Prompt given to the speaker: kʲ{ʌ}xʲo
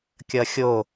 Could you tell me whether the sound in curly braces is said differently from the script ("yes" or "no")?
no